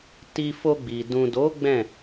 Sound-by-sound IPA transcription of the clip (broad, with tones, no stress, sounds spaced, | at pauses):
t i˧ f o˧ ɡ͡b i˨ d ũ˨ d o˨˦ ɡ͡b ɛ̃˦˨